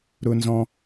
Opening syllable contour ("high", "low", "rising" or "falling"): high